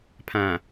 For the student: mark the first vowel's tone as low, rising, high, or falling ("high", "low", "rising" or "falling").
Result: low